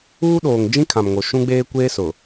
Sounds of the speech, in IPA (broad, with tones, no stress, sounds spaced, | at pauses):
uː˦ ɗ oː˨ ŋ d͡ʒ ĩ˦ kʰ ã˨ m ŋ o˨ ʃ ũ˦ ɡ͡b eː˦ kʷ eː˦ s ʊ˨